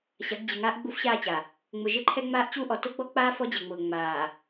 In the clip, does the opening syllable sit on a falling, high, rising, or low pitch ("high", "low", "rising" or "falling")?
rising